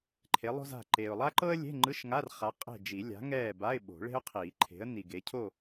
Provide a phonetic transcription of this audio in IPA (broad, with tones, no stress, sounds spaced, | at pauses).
ǃʰ e˨˥ lˠ o̤˥ z a̤˦˨ ǃ eː˨ ʊ̯ lˠ a˥ ǃ ɤ˥ ə̯ lʲ e̤˧˥˧ ŋ͡ǃ ɯ˧˥˧ ʃ ŋ a˧˥˧ r χ a˨˥ qʼ e̤˦˨ d͡ʒ i˨˩˦ lʲ a̤˨˥ ŋ ɛː˦˨ b a˧˥˧ ɪ̯ ɓ o̤˨˩˦ ɭ e̤˥ ʊ̯ qʰ iː˨˩˦ ǃʰ e̤˨˥ ə̯ n i˨ ɡ e˨˥ cʰ o˦˨